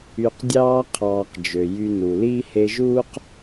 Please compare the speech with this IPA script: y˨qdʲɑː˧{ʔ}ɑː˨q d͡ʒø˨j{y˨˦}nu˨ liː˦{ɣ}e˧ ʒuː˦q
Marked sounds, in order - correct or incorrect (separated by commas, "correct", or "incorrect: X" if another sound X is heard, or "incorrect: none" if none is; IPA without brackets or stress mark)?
incorrect: qʰ, incorrect: y˧, incorrect: h